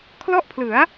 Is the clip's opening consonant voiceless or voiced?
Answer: voiceless